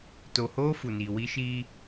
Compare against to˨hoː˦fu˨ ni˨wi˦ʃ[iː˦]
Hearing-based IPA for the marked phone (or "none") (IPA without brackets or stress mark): iː˦